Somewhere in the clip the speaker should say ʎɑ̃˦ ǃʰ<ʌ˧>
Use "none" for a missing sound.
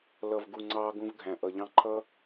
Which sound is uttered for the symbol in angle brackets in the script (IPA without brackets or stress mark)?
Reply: ʌ˦